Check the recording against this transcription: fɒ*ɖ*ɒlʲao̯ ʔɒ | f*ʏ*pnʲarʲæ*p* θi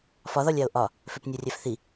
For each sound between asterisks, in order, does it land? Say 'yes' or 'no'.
no, yes, no

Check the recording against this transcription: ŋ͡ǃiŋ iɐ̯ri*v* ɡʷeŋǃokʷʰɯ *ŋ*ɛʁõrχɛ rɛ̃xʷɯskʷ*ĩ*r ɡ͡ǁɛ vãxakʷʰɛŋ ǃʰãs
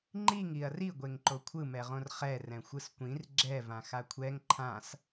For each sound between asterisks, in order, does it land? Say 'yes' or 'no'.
no, no, yes

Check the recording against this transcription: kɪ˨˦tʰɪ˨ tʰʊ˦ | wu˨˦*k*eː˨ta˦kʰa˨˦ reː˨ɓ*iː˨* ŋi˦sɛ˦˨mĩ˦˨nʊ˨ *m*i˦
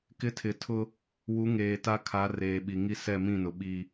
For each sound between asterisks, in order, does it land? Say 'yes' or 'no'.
no, no, no

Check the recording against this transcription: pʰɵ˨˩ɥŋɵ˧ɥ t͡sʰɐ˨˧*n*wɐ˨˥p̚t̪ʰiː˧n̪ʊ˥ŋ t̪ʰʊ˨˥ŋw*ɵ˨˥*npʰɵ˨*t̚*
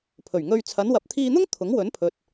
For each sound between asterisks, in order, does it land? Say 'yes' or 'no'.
yes, yes, yes

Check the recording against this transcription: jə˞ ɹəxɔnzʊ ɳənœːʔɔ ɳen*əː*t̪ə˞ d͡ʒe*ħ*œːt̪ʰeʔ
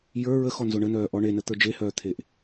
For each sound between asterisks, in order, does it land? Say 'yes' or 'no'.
no, no

